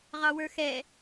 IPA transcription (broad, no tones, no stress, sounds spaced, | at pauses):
ʁ ɑ w ə˞ x ɛ